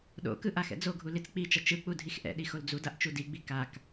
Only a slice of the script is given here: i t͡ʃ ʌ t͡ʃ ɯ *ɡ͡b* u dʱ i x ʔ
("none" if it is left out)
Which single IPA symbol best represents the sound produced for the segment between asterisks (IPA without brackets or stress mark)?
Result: k͡p